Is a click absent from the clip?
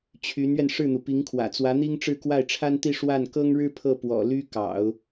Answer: yes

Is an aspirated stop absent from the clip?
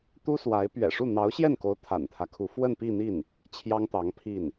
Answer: no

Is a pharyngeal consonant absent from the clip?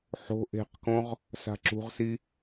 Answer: no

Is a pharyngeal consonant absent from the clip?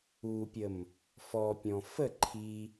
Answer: yes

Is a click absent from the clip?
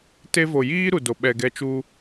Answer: yes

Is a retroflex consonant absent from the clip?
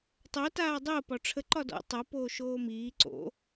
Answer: no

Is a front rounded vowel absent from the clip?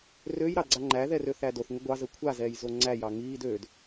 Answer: no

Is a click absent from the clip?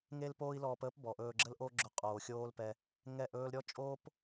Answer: no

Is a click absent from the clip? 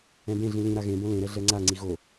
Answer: no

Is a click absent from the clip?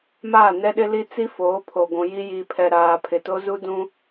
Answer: yes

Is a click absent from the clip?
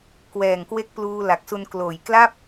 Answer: yes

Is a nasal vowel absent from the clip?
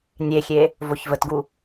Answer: yes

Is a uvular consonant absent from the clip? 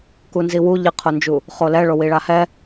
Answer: no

